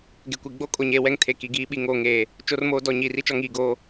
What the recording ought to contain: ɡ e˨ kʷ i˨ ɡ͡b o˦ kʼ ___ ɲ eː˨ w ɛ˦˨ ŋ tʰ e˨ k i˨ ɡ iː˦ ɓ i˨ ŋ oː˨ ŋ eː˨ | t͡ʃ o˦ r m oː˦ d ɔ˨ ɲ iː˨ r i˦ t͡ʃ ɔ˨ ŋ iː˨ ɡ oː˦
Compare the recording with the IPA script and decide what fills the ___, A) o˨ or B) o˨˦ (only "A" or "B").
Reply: A